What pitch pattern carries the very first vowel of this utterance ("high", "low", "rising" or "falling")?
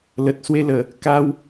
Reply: low